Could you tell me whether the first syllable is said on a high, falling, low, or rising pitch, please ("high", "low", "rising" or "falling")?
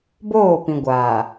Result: falling